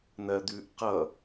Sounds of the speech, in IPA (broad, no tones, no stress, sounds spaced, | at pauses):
n̪ ɜ d̪ ʉː ʔ q ʌ